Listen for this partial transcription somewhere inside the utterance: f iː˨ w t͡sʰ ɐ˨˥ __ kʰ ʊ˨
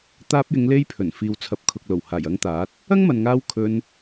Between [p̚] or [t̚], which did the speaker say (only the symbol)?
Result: p̚